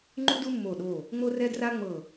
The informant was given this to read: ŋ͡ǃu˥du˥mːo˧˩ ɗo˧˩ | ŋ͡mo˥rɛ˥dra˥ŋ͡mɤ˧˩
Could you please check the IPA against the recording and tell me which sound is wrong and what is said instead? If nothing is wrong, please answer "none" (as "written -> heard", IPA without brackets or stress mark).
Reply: none